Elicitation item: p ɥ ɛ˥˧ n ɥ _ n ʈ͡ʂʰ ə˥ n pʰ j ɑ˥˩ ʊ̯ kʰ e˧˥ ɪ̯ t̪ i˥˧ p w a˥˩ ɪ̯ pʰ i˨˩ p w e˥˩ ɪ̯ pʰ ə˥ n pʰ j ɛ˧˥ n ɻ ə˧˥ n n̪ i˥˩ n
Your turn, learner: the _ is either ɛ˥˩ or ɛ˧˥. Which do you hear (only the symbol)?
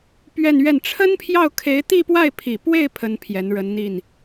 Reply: ɛ˥˩